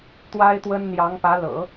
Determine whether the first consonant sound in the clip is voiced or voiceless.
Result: voiceless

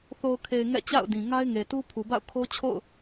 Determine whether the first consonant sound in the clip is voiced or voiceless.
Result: voiceless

